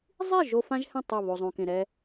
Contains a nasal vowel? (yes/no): yes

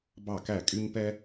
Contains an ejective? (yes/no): yes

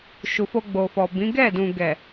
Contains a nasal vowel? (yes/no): yes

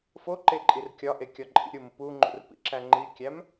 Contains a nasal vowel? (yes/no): no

